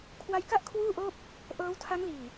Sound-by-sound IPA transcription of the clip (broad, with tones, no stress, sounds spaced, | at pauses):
kʰ w a˦˥ j k a˥˩ ʔ kʰ w uː˥˩ ʔ oː˥˩ p̚ | ʔ ɤː˦˥ w tʰ a˦˥ ŋ l iː˨˩